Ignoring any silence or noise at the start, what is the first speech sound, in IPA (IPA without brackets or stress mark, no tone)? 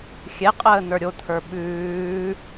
xʲ